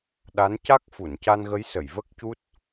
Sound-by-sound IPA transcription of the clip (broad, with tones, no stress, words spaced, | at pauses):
ɗa˧˥nca˦˥k̚ fu˨˩˨nca˧nɣə˧˥j sə˨˩˨jvə˦˥k̚cu˦˥t̚